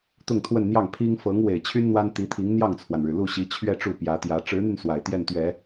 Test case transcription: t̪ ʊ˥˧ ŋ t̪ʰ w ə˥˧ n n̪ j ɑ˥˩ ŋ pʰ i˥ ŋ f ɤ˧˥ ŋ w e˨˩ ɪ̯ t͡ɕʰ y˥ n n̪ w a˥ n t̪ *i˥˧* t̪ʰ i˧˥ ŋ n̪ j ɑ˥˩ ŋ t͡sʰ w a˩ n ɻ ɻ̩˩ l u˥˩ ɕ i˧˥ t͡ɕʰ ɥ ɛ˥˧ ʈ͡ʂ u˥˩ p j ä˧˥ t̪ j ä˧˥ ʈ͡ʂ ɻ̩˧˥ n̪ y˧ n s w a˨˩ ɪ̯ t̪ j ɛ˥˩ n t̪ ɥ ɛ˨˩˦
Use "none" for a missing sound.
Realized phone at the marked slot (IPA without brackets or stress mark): i˧˥